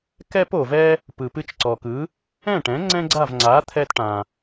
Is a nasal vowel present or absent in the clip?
present